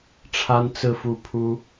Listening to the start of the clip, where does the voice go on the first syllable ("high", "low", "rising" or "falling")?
high